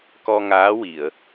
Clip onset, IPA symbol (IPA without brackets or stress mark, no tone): k